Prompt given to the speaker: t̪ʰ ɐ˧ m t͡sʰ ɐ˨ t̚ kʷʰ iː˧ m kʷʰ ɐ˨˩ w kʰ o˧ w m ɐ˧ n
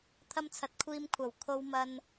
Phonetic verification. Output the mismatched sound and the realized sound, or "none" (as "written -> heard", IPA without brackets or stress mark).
none